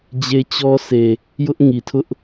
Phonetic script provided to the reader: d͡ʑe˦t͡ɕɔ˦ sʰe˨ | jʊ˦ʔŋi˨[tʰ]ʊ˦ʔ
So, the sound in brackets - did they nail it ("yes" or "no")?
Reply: yes